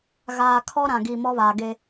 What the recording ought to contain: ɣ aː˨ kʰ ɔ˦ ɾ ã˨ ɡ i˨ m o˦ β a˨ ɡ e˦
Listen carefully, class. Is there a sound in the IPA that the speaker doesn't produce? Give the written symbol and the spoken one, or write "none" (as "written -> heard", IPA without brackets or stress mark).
o˦ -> ɔ˦